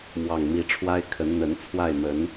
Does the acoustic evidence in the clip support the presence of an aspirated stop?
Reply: yes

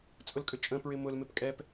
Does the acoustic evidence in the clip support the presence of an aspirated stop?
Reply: no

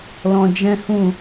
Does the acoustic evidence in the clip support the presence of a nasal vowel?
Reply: yes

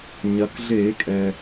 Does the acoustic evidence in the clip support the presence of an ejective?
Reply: yes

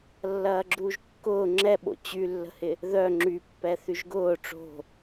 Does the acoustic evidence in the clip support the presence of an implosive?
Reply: yes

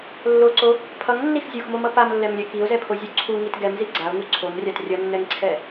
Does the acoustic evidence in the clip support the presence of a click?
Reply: yes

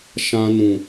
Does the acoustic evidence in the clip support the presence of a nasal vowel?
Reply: yes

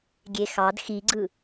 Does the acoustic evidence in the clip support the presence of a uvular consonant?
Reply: no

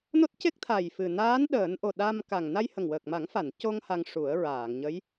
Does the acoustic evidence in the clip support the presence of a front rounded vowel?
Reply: no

